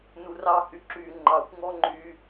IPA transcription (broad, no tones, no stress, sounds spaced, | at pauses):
n u r ɑ h y ǁ y ŋ͡ǃ ɑ xʷ ŋ ɔ ŋ͡ǃ y